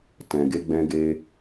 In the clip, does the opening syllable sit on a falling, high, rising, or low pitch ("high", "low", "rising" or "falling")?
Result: low